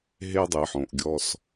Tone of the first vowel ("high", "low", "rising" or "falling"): high